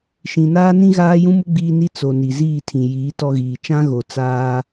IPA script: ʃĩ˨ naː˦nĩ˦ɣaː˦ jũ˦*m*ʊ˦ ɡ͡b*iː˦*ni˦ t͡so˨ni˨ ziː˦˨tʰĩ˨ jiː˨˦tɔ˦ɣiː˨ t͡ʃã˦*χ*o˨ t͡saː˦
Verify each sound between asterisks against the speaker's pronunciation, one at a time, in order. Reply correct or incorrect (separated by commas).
correct, correct, incorrect